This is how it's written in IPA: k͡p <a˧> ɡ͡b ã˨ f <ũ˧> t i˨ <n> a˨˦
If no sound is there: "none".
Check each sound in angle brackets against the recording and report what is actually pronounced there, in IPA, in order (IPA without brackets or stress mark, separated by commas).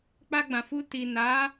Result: a˧, u˧, n